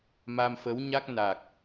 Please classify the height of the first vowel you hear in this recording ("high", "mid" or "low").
low